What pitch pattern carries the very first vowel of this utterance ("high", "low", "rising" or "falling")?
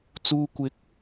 low